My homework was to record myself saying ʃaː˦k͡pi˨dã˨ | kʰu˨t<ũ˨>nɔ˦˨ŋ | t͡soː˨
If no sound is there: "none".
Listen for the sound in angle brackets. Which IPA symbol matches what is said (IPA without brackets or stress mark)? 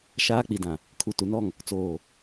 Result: u˨